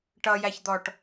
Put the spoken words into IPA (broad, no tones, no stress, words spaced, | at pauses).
ʈʌjæçd̪ɔʈ